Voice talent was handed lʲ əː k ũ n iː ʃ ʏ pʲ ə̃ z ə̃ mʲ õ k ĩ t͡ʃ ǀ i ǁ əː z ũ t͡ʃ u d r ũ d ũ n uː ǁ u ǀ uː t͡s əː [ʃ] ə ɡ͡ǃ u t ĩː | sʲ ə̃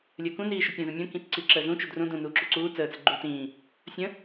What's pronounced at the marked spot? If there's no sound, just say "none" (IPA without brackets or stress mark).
t͡s